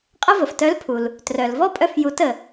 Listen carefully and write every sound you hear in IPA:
qʼ ə˥ v ə˩ f t œ˧˥ l pʰ u˩ l | t r œ˩ l v ɔ˥ pʼ œ˧ f j u˩˧ t ə˩

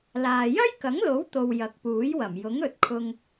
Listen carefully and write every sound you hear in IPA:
l aː˨ j ɐ˥ j k ɐ˨˥ ŋ l o˨˥ w t̪ o˨ w j ɐ˨˥ k̚ p uː˨˥ j w ɐ˨˩ m j ʊ˨˥ ŋ ɵ˨ t̚ kʰ ʊ˧ ŋ

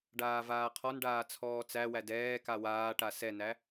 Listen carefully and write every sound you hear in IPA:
ɖ aː v aː qʰ ɔ n ɖ aː t͡sʰ ɔː t͡s æ w æ d ɛː k a w aː ʈ a s ɛ n æ

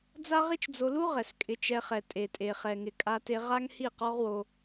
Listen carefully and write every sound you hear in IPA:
d͡z a˦ ʁ i˦ t͡ʃ d͡z o˧ l u˦ ʁ ɛ˨ s kʼ ɪ˧ t͡ʃ ɛ˧ χ ɛ˨ tʼ e˨ tʼ e˨ χ ɛ˨ ŋ ɪ˨ kʼ a˧ t e˧ ʁ a˦ ŋ h i˦˨ q ɔ˦ ʁ w o˧

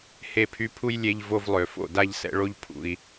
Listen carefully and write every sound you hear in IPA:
h e˧ pʰ y˧ pʰ u˦ j lʲ e˧ ʎ v o˧ v lˠ ø˨ f o̰˦˨ d a˧ ʎ s ɛ̰˧ ɭ o˧ ʎ pʰ ṵ˨ i̯

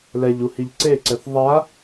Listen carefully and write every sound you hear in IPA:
l ɛ ʎ u h i ʎ ǀ e ǀ ɛ θ ðˤ a

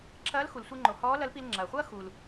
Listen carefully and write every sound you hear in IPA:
ǁʰ ɐː˧˥ l x u˩ l sʷ e˧ ŋ͡ǃ o˩ h ɔː˧˥ l ɐ˧˥ l p i˧ l ŋ͡ǁ ɐː˩ χʷ ɐː˥ x u˩ l

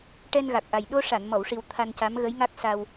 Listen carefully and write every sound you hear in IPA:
ʈ ɛ˧ n ɣ a˨˩ k̚ ʔ a˨˩ j ɗ o˧ ʂ a˨˩˨ n m ɔ˨˩˨ w ʂ i˨˩ w t̪ʰ a˧ n c a˧˥ m ɣ ə˧˥ j ŋ a˦˥ k̚ s a˧ w

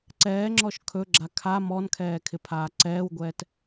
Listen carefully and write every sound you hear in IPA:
ǀ ɛː ŋ͡ǁ ɔ ʃ kʰ ɵ ɡ͡ǁ a kʰ a m ɔ n kʰ ɛː kʰ ɪ pʰ aː ǀ ɛː w ɡʷ ɛː t

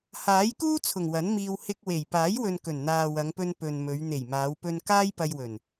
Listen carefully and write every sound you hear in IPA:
h aː˨˥ j k uː˥ t͡sʰ ʊ˨˩ ŋ w ɐ˨˥ n m iː˧ w h ɪ˧ k̚ w e˨˩ j p aː˨˥ j w ɵ˨ n k ɵ˨˩ n n̪ aː˨ w ɐ˨˧ ŋ p ɵ˧ n p ɵ˨ n m ɵ˨˧ ɥ n̪ e˨˩ j m aː˨˧ w p ɵ˧ n k aː˥ j p ɐ˧ j w ɵ˨˩ n

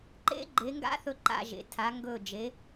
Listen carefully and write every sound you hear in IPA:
ǃ ḛ˦˥ ɡ͡ǃ e˩˧ ŋ ɡ a̰˦˥ θ ɵ˧˩ ǃ a̰˧˩ ʒ ḛ˩˧ tʰ a˩˧ ŋ ɡ ɵ˧˩ d͡ʒ e˩˧

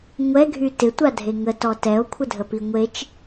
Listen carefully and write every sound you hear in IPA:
ŋʷ ɛ ɡʱ y t ɪ tʷ a dʱ e ŋ ə t ɔ t ɛ o̯ kʷʰ ə dʱ ə p i ŋʷ e t͡ʃ

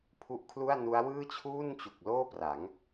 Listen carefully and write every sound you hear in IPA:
pʰ u˥˩ ʔ kʰ l u˥˩ a̯ n u˦˥ a̯ w ɯː˥˩ t͡ɕʰ uː˥˩ n t͡ɕ u˨˩ k̚ l oː˥˩ p r a˩˦ ŋ

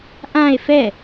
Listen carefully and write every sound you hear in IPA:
ʔ ã e̯ f ɛ

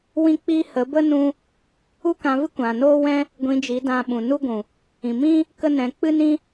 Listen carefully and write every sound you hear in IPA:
w ĩ˦ k͡p iː˦ h ə˨˦ b ə˦ n ũ˦ | u˦ k ã˧ v ɨ˦ kʷ ã˨ n oː˦ w ɛ̃˦ | ɡʷ ĩ˧ d͡ʒ i˨˦ d ã˧ ɓ ũ˨ n u˦ ɡʷ ũ˨ | ĩ˨ m ĩ˦ | k ə˦ n ɛ̃˨˦ k͡p ɨ˦ n ĩ˦

